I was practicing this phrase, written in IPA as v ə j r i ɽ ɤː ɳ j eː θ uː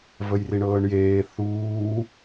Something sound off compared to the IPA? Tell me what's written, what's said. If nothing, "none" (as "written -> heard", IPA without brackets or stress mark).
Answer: ɽ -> ɳ